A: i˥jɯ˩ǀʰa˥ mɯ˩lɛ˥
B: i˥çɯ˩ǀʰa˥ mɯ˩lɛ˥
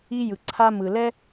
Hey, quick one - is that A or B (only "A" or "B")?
A